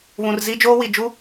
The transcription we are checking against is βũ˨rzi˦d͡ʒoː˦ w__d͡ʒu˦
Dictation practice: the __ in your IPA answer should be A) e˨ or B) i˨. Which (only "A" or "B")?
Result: B